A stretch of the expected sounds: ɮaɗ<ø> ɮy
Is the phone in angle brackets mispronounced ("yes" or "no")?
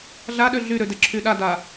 no